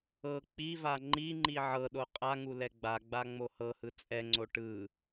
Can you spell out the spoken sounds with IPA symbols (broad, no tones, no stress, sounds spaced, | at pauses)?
ɤ k͡p i v a ŋ͡ǃ i ŋ͡ǃ i ʕ ɤ ɗ o qʼ a ŋ u l ɛ ɡ͡b a ɡ͡b a ŋ͡m o h ɤ h ɯ t͡sʼ ɛ ŋ͡ǀ o ʈ ɯ